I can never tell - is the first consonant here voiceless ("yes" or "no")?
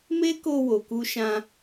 no